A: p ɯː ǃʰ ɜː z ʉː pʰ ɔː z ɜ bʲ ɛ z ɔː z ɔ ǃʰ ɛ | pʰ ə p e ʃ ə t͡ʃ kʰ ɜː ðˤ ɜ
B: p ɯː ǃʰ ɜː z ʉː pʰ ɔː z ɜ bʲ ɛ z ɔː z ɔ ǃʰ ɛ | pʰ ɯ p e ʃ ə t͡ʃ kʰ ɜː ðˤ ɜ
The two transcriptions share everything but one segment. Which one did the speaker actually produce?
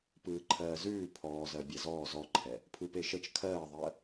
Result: B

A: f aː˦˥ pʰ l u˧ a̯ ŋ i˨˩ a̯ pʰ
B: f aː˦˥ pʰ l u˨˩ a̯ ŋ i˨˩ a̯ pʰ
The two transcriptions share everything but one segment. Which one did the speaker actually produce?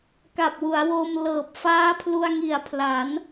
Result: A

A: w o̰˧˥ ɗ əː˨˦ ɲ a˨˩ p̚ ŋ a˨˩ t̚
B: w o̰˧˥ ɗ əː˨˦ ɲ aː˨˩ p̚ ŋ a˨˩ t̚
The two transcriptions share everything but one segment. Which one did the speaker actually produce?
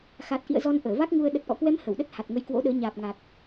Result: B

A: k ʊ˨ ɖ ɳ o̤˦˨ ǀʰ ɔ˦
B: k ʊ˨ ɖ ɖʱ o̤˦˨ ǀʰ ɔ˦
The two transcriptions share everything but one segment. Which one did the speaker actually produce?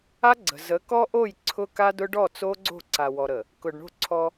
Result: A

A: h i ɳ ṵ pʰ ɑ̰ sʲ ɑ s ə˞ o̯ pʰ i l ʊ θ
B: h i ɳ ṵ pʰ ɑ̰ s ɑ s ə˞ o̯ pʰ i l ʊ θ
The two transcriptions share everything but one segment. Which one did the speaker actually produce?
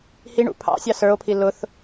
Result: A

